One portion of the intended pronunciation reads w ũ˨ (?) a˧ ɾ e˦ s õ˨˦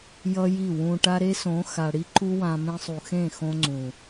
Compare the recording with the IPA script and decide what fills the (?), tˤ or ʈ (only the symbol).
ʈ